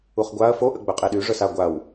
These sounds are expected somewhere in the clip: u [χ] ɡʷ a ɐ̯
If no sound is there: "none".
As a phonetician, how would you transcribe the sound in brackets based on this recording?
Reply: χ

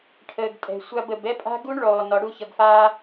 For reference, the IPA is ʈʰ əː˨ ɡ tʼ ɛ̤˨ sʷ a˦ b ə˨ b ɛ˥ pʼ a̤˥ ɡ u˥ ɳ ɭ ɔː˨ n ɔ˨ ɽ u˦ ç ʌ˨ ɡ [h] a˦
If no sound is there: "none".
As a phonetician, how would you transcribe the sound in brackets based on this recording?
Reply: f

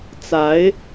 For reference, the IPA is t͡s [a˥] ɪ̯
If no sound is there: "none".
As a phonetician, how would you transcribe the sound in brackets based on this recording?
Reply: a˧˥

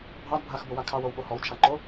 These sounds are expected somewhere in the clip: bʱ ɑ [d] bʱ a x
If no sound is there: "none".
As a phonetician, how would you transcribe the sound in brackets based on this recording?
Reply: d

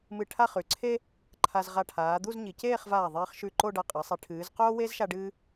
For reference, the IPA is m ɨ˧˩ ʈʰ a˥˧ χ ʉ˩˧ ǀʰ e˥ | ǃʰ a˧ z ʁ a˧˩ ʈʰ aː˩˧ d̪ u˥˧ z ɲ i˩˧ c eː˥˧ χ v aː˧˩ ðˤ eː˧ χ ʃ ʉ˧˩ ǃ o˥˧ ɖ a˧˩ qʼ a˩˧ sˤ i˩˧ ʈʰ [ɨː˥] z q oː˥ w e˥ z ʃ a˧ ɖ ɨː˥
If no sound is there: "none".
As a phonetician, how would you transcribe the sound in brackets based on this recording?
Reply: ɨː˩˧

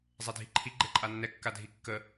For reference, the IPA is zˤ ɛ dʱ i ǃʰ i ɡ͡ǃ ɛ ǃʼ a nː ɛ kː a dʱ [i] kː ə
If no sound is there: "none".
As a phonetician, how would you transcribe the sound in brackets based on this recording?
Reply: i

